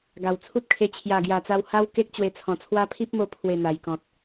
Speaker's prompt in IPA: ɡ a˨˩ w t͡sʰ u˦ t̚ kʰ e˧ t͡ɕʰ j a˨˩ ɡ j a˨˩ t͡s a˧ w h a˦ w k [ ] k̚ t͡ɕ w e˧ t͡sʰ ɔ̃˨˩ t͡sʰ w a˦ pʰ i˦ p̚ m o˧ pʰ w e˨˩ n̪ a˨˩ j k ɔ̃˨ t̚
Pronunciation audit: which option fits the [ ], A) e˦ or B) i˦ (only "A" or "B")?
A